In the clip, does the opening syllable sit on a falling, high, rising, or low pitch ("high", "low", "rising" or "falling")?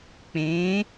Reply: rising